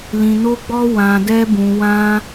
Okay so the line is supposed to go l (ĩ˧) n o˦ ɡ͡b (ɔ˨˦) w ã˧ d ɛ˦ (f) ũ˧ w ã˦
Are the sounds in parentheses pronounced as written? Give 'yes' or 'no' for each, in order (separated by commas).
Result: yes, no, no